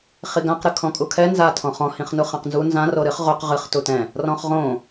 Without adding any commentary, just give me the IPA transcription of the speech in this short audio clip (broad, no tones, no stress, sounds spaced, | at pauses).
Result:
χ i ɡ ã q ɾ ɨ kʰ ɔ̃ kʼ u kʰ ɛ n z a tʰ ɔ̃ χ ɔ̃ h ĩ χ n u χ ã q n z u n z ã r o ɾ ɨ χ ʁ o q ʁ ɨ χ t u t ɛ̃ | r ɔ̃ χ ʁ õ